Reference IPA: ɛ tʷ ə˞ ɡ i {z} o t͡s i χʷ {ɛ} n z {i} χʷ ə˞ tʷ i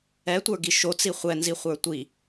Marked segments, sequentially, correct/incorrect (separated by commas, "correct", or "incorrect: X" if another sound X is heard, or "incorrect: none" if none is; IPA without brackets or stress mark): incorrect: ʃ, correct, correct